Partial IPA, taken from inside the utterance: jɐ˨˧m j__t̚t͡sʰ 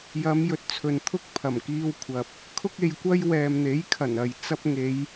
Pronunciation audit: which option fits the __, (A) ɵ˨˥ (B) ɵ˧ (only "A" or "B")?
A